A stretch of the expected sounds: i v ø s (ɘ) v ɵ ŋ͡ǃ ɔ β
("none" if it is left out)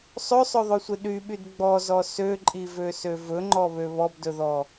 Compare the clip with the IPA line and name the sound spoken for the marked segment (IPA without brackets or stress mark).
ø